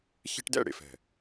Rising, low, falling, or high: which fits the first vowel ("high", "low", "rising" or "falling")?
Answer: high